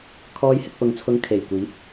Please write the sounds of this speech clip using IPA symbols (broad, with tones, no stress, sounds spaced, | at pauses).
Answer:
kʰ ɔː˧ j h ɪ˨ k̚ p ʊ˨ ŋ t͡sʰ ʊ˨˧ ŋ kʰ e˨˩ j kʷ iː˨˥ p̚